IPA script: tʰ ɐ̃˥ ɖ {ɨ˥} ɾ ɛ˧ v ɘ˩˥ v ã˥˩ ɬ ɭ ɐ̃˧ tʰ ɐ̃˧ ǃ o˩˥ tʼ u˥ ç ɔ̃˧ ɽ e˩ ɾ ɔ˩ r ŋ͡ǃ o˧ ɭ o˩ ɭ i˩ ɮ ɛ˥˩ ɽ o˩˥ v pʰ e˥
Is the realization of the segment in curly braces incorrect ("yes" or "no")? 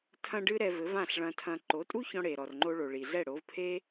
no